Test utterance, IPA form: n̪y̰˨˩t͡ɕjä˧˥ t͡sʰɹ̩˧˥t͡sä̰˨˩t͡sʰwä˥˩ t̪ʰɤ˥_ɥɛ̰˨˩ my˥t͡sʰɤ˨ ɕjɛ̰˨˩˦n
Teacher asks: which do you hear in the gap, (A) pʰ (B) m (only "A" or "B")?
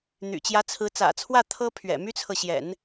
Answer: A